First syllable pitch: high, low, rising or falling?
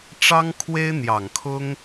high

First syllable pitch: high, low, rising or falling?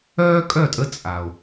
high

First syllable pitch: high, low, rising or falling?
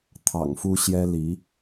low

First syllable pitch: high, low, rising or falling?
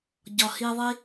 low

